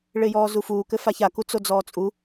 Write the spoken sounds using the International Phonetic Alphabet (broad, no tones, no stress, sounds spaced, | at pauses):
ɭ ɪː j ɔː z u f uː k ɘ f a ç a k u t͡s o d͡z ɔː t͡sʼ u